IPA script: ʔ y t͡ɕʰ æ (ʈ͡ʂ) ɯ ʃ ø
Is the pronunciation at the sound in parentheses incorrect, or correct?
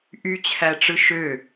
correct